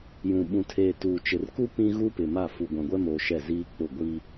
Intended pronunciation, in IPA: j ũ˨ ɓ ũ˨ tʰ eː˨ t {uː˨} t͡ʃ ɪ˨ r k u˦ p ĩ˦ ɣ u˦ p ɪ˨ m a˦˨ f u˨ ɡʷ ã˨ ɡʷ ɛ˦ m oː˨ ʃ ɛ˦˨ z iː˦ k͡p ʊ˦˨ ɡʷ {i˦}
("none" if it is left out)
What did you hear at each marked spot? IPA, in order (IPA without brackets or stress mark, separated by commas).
uː˨, i˦